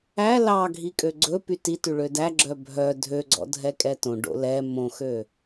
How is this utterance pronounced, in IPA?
æ l ɑ ɡʱ i kʼ ø ɡ͡ǀ ɵ p y t i t ʉ ɭ ø d æ ɡ͡ǁ œ bʱ œ dʱ ø ɡ͡ǀ ɔ̰ dʱ ɛ kʼ ɛ t õ ɖ o̰ l ɛ m õ x ø

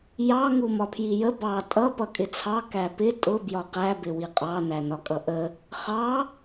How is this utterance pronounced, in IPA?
j ɑ ŋ u m ɒ pʰ j i j ə b ɑ tʼ ʌ p ʌ kʼ ɪ t͡sʰ ɑ k æ p ɪ tʼ ʊ b j ɒ q æ b ɪ w i qʼ ɑ n æ n ɒ kʼ ʌ ʔ ə | χ ɑ

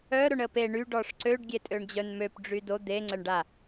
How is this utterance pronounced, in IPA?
œ ɾ o ɳ ə p e ɳ y ɖ ɔ ʂ ǀ ø ɖ ɡʲ e tʼ ø ɳ d͡ʑ œ n m ø p ɖ͡ʐ y d o d̪ e ŋ͡ǀ ə ɳ ɖ a

